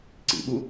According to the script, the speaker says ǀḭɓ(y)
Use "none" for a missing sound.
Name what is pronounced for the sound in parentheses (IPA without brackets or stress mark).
u